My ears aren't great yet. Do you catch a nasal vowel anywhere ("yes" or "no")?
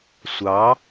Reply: no